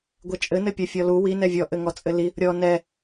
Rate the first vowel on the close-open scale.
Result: mid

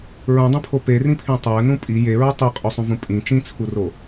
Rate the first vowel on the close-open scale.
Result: close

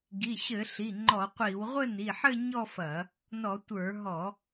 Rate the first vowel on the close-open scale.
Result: close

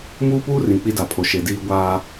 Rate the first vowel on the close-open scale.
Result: close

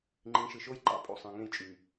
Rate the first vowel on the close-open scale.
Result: close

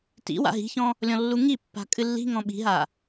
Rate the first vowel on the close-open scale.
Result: close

